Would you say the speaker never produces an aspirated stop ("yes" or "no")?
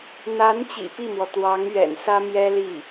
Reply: yes